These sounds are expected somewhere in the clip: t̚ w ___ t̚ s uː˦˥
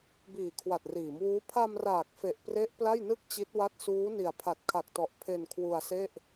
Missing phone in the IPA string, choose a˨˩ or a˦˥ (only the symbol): a˦˥